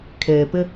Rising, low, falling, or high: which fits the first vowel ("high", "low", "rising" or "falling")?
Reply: low